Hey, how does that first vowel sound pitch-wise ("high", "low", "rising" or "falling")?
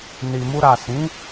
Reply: low